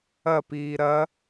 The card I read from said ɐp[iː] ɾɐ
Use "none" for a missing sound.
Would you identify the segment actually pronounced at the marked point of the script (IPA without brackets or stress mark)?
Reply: iː